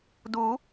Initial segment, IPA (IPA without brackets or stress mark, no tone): d